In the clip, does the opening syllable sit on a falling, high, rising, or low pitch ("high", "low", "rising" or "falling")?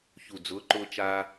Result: low